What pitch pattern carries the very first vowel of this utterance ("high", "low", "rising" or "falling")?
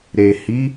low